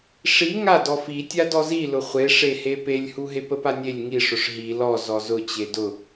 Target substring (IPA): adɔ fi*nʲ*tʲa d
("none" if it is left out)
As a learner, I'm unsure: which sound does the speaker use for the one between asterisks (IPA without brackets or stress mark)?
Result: none